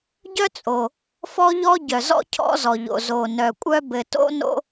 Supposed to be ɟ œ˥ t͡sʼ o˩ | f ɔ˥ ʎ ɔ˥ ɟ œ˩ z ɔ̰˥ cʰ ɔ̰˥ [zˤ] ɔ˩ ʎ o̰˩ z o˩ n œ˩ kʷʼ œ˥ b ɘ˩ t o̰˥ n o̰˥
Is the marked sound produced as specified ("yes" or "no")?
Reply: no